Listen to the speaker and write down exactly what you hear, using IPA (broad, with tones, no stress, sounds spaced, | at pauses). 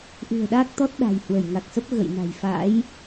ʔ ɨ̤˨˩ ə̯ ɗ aː˦˥ k̚ t̪ ɔ˦˥ t̚ ɗ a̤˨˩ j h w ə˧˩ j ŋ a˨˩ k̚ s ə˦˥ p̚ ɣ ə̰˧˨ j n a̤˨˩ j f a̰˧˥ j